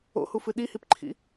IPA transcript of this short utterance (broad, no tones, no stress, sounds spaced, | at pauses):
o̰ h u f ɨ ɗ i h i p ǃʰ ḭ